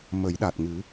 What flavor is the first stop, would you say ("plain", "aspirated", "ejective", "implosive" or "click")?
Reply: implosive